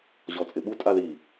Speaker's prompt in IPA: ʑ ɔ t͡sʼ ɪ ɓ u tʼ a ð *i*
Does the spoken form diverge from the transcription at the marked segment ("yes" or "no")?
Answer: no